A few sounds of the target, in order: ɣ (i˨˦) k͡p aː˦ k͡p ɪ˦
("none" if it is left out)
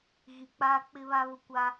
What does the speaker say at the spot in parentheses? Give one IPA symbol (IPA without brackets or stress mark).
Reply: i˨